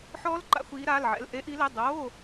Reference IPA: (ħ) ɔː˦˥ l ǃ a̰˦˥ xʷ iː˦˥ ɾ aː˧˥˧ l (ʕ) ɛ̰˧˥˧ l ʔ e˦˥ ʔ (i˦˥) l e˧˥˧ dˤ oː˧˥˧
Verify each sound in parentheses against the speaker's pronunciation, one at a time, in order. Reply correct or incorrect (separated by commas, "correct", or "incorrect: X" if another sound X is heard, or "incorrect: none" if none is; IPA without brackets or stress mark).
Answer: correct, correct, correct